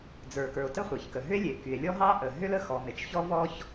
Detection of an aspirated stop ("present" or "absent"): absent